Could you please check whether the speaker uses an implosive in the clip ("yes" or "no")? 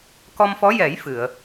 no